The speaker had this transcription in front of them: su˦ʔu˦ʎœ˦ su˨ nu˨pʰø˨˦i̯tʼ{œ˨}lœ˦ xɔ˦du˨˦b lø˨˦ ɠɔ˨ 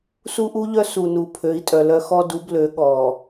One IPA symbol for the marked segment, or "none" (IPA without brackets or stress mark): œ˨